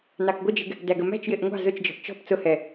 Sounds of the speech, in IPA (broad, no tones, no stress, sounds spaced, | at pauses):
n ɑ k ɡʷ ə d͡ʒ ɪ ɡ | d æ ɡ ə m æ̤ t͡ʃ j ɪ ʔ ŋʷ ɑ̤ z ʊ t͡ʃ d͡ʒ ɔ̤ ʔ t͡ʃ ɔ̤ p t͡s ʊ h ɛ